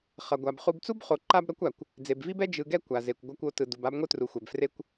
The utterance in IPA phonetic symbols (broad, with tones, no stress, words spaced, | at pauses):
χʌ˩ɡʷa˩b χu˨bt͡su˥bχo˩ ǃa˦bɾʌ˦kʷ a˩kʷ | d͡ze˩bvi˥bɛ˥ d͡ʒɯ˨ɡɛ˦ kʷa˩ze˩kʷ ɡʷʌ˨kʷ o˨tɯ˩ du˩ba˦bŋʷɯ˦tru˩ xʷɛ˩bfre˦kʷ